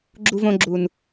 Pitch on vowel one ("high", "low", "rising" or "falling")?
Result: high